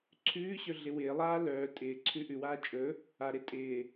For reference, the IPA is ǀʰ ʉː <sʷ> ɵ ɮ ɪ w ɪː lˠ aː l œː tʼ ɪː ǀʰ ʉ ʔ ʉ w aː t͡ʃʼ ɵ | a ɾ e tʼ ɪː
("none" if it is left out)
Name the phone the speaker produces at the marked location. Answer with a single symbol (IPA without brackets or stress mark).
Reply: ɕ